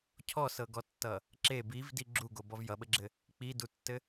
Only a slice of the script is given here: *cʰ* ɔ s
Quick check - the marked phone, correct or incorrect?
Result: correct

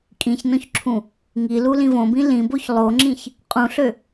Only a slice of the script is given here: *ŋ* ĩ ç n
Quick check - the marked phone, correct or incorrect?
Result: incorrect: kʼ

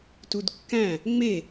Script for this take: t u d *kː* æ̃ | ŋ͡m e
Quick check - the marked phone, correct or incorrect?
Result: correct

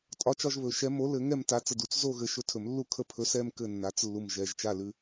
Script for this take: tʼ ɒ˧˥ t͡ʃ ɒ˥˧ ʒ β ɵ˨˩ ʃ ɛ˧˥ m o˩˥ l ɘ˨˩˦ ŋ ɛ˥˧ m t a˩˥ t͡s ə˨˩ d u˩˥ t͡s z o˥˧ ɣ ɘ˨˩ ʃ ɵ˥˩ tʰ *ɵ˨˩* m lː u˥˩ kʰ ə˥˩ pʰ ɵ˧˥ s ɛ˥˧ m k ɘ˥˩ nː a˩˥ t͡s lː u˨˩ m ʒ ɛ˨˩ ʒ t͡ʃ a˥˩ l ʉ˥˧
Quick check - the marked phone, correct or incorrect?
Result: incorrect: ɵ˨˩˦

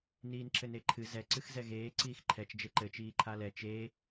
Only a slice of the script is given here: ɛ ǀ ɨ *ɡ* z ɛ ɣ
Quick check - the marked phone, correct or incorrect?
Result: incorrect: x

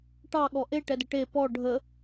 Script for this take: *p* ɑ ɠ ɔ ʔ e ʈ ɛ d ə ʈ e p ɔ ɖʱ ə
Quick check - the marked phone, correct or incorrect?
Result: incorrect: ʈ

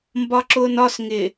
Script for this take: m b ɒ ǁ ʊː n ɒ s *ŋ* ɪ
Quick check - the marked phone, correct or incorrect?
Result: correct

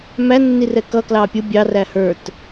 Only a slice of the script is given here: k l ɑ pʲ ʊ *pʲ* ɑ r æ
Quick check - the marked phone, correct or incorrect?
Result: incorrect: bʲ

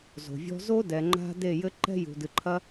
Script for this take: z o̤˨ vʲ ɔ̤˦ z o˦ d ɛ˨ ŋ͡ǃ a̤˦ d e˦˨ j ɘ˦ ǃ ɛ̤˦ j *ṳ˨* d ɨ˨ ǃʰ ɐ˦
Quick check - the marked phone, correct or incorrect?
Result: correct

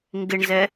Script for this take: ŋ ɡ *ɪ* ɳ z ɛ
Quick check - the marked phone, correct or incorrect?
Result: correct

